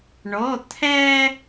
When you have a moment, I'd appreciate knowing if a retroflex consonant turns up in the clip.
yes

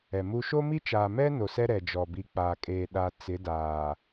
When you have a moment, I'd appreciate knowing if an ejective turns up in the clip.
yes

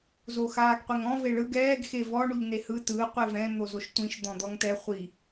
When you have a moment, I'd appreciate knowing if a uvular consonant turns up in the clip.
yes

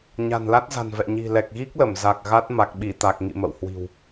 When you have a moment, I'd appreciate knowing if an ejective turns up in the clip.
no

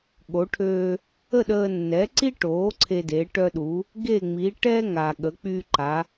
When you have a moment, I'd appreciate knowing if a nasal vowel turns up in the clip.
no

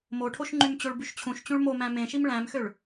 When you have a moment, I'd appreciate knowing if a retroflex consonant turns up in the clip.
yes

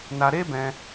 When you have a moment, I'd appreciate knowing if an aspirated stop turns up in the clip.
no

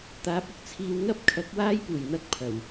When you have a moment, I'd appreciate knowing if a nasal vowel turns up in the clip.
no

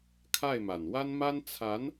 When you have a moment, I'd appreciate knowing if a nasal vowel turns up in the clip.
no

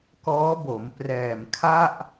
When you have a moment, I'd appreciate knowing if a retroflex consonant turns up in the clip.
no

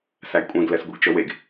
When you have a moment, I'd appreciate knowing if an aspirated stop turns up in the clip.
no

